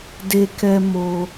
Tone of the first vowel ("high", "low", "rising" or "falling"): high